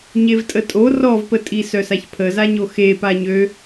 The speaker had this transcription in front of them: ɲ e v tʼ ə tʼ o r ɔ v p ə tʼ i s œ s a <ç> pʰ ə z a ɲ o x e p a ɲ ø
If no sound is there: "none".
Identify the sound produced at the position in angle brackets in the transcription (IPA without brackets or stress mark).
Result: ç